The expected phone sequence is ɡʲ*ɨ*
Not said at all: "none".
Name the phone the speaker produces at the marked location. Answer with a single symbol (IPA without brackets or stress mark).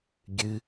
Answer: ɨ